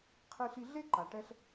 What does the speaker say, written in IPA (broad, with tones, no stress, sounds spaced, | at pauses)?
qʰ i˧ ɬ i˧ ɮ e˥ ǃ a˩ ʈ ɛ˧ ɬ